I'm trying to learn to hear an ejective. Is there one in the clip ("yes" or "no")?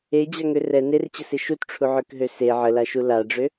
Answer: no